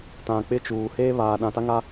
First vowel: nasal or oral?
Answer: nasal